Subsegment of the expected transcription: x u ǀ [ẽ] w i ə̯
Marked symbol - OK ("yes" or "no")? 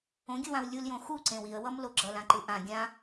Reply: yes